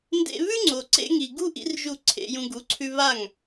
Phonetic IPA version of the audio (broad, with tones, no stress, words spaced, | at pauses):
ndḛ˦ βʉ˦ŋ͡ǀo˨ǀḛ˧ŋi˨ ɡu˦ʔḭ˧r ʒu˦˨ǀʰḛ˧jũ˧ ɡu˨˦ǀʰʉ˧ βa˦˨ŋ